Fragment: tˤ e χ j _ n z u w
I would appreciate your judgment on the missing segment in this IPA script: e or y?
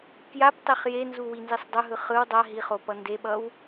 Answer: e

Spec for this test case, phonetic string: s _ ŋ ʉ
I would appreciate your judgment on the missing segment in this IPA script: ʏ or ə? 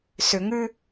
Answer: ʏ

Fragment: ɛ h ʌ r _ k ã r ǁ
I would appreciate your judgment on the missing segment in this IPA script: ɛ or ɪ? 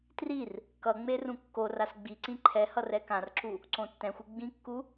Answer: ɛ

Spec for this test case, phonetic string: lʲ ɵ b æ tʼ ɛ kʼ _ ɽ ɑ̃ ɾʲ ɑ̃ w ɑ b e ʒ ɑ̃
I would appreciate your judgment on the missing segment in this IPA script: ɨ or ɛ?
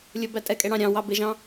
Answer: ɛ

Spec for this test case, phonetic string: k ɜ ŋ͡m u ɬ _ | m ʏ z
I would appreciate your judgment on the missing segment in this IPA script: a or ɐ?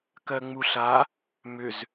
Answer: a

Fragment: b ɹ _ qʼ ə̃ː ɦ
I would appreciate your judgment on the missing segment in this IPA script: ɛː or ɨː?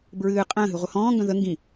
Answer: ɨː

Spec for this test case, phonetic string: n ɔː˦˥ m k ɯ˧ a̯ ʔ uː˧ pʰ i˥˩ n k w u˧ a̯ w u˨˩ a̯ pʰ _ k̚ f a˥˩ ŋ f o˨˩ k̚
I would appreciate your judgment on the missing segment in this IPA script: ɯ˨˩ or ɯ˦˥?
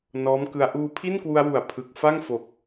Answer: ɯ˨˩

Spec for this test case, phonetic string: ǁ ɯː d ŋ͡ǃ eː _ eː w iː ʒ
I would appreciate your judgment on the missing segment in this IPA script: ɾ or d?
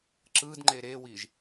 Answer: ɾ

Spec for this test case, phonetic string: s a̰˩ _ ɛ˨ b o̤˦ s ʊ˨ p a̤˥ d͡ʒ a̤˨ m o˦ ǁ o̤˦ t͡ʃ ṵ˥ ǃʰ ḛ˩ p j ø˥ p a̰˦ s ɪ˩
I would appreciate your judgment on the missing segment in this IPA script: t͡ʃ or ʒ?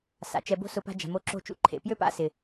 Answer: t͡ʃ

